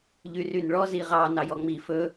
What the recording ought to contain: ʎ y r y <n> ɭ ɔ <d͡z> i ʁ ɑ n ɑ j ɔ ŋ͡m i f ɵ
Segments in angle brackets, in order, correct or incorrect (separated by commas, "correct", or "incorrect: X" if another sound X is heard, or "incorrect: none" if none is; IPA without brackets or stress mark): correct, incorrect: z